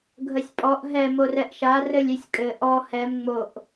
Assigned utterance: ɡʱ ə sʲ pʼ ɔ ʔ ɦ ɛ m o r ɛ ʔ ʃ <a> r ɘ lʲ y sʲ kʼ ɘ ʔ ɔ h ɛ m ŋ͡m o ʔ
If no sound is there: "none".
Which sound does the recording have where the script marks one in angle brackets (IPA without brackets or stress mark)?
a